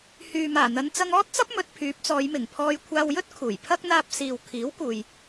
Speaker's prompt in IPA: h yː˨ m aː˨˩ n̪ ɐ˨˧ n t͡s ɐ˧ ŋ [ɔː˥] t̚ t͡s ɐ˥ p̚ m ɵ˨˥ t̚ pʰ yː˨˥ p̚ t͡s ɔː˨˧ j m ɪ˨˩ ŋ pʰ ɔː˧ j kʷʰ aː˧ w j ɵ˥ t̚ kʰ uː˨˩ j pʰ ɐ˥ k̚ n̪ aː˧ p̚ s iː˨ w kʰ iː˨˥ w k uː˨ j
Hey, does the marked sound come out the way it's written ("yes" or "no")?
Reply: yes